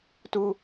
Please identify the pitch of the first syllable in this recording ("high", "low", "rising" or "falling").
high